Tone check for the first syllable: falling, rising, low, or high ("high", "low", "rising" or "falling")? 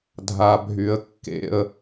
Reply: low